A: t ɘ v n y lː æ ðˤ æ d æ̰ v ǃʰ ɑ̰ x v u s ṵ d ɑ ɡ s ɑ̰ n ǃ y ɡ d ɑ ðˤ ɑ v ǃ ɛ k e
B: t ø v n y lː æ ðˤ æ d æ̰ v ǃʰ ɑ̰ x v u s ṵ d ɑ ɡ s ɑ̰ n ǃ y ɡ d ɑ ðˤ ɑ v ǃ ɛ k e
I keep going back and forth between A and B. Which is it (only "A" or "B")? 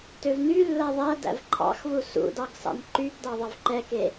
B